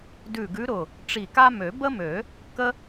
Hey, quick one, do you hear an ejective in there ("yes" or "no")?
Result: no